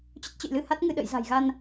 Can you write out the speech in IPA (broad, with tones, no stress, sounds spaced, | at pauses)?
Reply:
t͡ɕ ə˦˥ t̚ t͡ɕ ə̰˧˨ j l ɨ˧ h a˦˥ t̚ ŋ ɨ˧ ɗ ə̰˧˨ j z a̤˨˩ j ɣ a˧ n